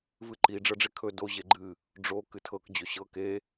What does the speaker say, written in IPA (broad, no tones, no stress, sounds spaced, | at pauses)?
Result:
v ɨ ǃ i ɖ͡ʐ ɤ ɖ͡ʐ e kʰ ɵ d o ʑ e ɡ͡ǃ ɨ | ɖ͡ʐ o k ɨ tʰ ɤ k d͡ʑ ɵ ɕ ɤ k e